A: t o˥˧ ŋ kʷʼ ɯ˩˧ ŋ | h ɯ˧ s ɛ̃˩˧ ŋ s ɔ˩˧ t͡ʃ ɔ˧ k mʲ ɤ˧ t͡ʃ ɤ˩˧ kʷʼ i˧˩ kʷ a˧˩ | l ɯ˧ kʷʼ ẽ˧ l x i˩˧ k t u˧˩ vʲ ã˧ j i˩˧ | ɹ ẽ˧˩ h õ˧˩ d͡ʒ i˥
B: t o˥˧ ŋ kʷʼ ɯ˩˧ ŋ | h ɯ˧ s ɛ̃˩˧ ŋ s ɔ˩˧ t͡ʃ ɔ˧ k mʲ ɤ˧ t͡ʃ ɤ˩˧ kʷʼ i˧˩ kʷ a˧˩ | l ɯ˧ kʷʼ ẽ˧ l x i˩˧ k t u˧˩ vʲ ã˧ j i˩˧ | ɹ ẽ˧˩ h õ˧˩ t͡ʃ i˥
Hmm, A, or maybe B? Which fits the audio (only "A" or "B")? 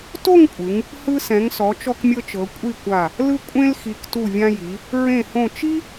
B